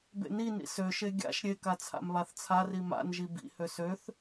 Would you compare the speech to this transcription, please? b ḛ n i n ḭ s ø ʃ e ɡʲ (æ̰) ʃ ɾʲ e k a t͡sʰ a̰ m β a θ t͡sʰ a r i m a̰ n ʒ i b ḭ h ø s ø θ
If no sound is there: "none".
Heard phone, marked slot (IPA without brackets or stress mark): a̰